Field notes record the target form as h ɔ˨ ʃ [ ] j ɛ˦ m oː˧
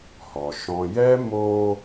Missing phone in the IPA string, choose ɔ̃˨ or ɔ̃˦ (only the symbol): ɔ̃˨